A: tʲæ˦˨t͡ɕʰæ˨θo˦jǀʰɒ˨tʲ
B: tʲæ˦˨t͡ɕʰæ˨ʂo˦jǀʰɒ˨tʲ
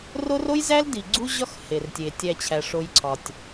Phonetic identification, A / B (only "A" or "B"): B